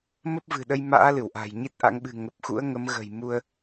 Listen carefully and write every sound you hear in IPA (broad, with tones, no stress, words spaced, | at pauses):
mə˦˥p̚vɨ̤˨˩ɗə˧j ma̰ː˧˥ lɨ˧˩wʔa̤˨˩jɲi˦˥t̚ʔa̰˧˥ŋ ɓɨ̤˨˩ŋə˨˩p̚xṵ˧˥ə̯ ŋə˨˦mɣə̤˨˩j mu˧ə̯